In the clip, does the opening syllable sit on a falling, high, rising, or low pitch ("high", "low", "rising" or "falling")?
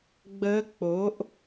rising